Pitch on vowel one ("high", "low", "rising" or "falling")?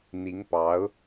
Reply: rising